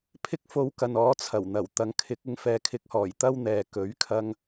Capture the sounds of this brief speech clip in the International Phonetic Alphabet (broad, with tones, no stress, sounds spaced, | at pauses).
pʰ ɪ˥ k̚ f o˧ w k ɐ˨ n ɔː˨˧ t͡sʰ ɐ˨˩ w n̪ ɐ˨˩ w t̪ ɐ˨ ŋ kʰ ɪ˨˥ k̚ ɪ˨˥ ŋ f ɛː˨˧ kʰ ɪ˧ k̚ h ɔː˨˩ j t̪ ɐ˥ w n̪ ɛː˨ k ɵ˨˥ ɥ kʰ ɐ˧ ŋ